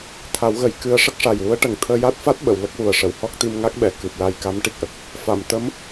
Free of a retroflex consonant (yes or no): no